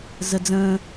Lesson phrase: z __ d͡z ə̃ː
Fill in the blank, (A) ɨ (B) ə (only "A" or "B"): B